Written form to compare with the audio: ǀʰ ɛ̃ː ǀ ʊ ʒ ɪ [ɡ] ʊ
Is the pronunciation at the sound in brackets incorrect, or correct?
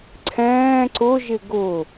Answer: correct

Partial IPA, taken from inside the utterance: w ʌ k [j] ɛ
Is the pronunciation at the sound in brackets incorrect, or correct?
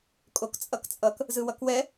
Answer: incorrect: w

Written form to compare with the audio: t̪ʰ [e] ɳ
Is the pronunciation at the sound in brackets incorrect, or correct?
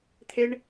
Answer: correct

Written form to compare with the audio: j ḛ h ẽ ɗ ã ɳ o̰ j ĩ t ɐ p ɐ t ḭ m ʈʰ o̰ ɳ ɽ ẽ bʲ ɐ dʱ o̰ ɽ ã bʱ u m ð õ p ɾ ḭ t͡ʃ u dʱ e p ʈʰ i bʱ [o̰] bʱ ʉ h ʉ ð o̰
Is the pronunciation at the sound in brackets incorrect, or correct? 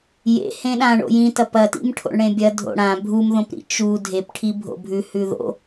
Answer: correct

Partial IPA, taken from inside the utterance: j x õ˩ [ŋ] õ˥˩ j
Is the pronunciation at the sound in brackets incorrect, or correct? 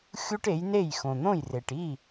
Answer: incorrect: n̪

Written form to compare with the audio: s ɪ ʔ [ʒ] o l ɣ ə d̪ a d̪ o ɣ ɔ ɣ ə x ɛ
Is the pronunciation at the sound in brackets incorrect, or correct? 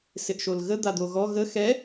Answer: incorrect: ʃ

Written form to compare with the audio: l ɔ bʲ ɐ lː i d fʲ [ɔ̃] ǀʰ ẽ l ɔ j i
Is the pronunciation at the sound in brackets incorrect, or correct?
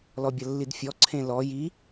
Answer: incorrect: ɔ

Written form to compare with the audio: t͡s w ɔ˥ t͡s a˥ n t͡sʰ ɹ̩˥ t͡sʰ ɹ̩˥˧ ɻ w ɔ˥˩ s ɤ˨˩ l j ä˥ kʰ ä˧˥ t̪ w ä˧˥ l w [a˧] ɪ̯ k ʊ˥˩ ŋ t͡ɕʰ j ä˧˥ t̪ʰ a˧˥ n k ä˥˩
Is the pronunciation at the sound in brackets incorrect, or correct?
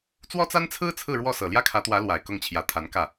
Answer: incorrect: a˨˩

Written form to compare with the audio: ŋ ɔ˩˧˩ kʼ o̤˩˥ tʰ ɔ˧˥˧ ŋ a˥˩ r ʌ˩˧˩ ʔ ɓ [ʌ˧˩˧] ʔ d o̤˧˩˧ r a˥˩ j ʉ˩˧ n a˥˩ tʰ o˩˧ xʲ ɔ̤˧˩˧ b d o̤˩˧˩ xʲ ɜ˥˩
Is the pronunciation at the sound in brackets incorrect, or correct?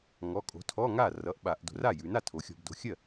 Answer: incorrect: a˧˩˧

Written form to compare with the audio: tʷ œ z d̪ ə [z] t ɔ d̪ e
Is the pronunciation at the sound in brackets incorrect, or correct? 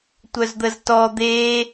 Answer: correct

